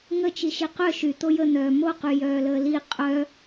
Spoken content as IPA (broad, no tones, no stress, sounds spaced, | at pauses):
ŋ ə t͡ʃ i ʃ i q œ ʃ y t̪ o j ə n̪ œː m o q y j œː l əː l i qʼ œ